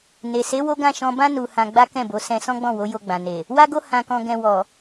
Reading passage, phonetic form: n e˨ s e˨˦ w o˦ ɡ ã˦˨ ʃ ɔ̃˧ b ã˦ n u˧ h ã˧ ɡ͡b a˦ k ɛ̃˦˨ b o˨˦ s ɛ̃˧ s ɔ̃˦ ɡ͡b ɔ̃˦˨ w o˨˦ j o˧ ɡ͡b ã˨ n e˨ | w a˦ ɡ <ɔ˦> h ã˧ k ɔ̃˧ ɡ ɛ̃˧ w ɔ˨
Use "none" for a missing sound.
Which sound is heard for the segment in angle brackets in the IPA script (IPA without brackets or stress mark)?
o˦